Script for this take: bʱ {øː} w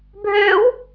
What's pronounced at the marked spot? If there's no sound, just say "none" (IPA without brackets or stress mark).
øː